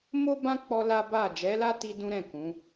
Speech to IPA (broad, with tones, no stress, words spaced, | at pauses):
mo˦bã˦ k͡pɔ˦la˦ ba˦˨ d͡ʒɛ˨˦la˦ti˧ dũ˦ɾɛ̃˦˨kũ˨˦